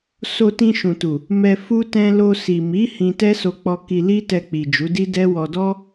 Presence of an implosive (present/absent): absent